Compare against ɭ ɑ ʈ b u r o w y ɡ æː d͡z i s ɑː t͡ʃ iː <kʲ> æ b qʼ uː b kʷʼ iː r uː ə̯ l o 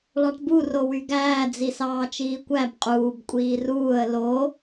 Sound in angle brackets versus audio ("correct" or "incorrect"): incorrect